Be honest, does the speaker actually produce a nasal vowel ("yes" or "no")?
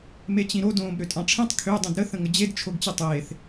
yes